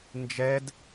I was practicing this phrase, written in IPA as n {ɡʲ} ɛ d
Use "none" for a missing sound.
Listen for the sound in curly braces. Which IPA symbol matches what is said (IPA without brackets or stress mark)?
d͡ʒ